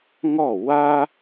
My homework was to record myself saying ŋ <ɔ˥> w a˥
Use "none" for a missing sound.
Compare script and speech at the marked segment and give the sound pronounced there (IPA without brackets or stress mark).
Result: ɔ˥˩